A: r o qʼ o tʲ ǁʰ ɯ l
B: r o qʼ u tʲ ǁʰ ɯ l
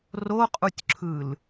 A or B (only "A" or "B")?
B